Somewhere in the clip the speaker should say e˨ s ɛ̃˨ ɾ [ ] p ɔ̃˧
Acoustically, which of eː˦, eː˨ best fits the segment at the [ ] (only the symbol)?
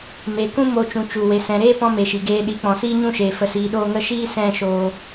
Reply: eː˦